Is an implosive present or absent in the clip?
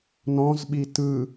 present